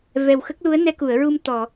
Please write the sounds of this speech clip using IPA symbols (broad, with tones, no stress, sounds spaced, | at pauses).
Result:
v ɛ˨˩ w x ə˦˥ k̚ l u˧˥ ə̯ n ɛ˧ k u˨˩˨ ə̯ ɹ u˧ m t̪ ɔ˨˩˨